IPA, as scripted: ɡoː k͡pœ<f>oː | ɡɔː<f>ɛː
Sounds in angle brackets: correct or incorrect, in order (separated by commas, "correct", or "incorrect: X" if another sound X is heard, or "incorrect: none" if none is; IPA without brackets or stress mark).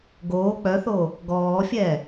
incorrect: θ, incorrect: fʲ